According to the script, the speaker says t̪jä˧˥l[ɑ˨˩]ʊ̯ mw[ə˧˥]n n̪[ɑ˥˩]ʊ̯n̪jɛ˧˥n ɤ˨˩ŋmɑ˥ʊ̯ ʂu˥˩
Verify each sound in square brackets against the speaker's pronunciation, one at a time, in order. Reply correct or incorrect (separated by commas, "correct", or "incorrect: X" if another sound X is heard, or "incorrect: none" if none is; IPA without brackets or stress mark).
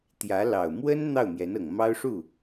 correct, incorrect: ə˥, correct